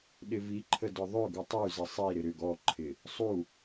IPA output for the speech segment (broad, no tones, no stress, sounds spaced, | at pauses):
ɗ ɪ v i ǃʰ ə d ʊ ðˤ ʏ ɡ u tˤ y z ɪ sˤ i ɾ ɪ ɾ ʏ ɡ ɔ ǃʰ ɪ | sˤ u